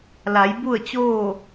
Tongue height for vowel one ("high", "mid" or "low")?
low